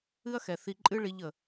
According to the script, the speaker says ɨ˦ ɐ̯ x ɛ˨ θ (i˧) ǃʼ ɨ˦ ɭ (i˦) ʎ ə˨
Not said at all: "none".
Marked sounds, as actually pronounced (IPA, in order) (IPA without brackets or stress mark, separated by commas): i˧, i˦